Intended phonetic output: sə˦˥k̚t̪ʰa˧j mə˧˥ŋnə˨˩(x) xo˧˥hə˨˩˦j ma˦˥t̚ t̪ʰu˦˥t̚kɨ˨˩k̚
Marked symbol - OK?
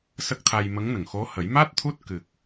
no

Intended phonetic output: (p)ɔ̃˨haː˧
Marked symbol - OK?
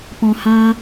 yes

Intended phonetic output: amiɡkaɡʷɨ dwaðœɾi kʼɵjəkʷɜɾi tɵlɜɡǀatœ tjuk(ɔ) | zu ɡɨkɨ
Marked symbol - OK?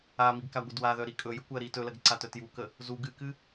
no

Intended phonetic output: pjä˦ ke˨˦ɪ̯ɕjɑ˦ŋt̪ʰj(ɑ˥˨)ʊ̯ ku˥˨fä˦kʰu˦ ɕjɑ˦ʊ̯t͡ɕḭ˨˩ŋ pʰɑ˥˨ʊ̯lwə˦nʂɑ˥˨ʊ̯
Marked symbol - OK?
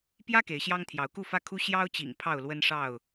no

